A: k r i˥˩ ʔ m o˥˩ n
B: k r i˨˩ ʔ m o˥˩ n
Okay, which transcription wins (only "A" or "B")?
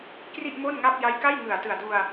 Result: A